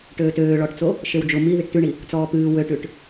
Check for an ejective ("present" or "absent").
absent